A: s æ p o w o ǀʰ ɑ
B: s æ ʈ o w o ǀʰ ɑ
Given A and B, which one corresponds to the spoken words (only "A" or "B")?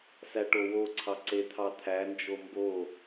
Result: B